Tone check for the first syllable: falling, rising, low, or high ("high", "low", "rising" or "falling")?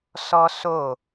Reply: high